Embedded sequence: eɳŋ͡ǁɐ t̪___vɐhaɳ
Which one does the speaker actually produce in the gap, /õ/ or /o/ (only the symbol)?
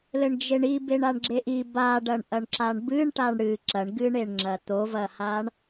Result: o